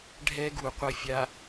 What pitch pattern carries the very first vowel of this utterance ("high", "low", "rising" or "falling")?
high